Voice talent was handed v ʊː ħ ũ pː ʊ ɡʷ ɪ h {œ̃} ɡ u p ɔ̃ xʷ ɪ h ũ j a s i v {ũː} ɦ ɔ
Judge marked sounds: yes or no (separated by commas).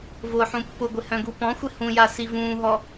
yes, yes